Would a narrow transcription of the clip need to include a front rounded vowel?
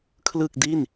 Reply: no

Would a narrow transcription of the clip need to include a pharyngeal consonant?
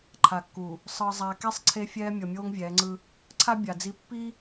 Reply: no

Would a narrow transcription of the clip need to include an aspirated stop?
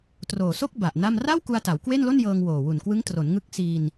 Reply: no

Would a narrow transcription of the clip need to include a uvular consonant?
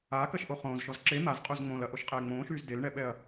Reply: yes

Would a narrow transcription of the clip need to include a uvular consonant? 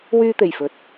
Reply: no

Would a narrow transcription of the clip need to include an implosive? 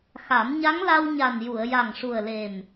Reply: no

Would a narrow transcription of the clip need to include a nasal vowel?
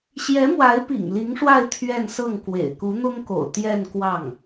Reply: no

